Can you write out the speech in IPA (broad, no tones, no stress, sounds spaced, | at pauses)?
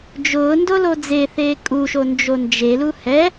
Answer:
d͡ʒ ʊː n d o l o d͡z e θ eː kʼ u ʃ o n d͡ʒ o n d͡ʒ e l u h ɛ